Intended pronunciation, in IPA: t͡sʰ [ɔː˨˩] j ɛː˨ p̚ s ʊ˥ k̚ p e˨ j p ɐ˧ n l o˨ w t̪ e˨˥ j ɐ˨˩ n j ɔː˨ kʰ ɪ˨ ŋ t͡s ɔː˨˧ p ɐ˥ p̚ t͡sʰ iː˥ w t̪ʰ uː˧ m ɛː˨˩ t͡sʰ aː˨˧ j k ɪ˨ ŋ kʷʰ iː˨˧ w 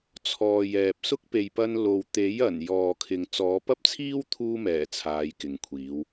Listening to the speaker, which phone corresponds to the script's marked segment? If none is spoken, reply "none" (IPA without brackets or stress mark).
ɔː˨